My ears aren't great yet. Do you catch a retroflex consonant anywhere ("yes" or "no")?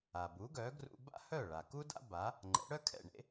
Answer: yes